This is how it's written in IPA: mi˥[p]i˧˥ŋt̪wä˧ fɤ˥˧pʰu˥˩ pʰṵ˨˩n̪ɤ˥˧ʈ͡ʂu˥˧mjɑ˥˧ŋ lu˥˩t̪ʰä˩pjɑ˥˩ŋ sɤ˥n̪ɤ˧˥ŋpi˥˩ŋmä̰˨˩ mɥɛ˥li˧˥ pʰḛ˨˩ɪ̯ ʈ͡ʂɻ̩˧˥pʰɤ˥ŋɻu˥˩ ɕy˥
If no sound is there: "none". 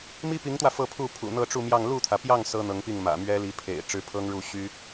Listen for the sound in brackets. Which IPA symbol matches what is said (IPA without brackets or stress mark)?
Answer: p